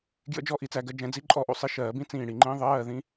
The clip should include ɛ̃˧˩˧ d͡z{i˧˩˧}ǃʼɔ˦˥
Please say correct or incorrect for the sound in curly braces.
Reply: incorrect